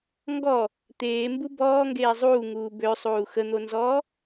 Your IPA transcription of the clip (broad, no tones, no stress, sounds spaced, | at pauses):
ŋ ɡ ɔ | t̪ eː m b u b ɔː ŋ ɡ eː zˤ uː ŋ uː b ø sˤ uː x ə n̪ o n z ɔː